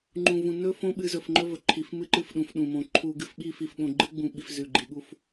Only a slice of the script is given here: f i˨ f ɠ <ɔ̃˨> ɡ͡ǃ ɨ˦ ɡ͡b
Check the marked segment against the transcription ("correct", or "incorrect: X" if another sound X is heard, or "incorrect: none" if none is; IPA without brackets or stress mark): incorrect: õ˨